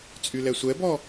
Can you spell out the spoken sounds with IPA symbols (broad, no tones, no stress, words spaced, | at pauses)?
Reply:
t͡sʼylɛsʷɛbɔ